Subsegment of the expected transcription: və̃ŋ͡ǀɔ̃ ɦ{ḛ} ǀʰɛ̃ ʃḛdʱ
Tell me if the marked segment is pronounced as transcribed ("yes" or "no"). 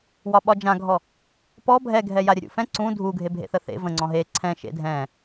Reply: no